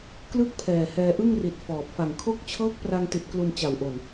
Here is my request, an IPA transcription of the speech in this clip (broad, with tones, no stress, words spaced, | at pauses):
klɯ˥˩k̚pʰɛː˨˩ hɛː˧ʔɯ˥˩ŋri˨˩t̚ fɔː˨˩p̚ fa˨˩ŋkʰo˥˩k̚ t͡ɕʰɤː˦˥k̚pra˧ŋti˨˩t̚ klu˧nt͡ɕa˨˩wʔo˨˩n